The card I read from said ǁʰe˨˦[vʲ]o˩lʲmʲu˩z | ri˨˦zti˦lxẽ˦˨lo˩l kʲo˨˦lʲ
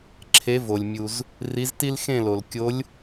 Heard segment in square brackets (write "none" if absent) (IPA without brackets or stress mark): v